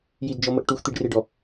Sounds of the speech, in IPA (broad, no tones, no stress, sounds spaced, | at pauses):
j i d d͡ʒ ɔ m ə ʔ ʈ u x t̪ i ɖ r e ɖ ɔ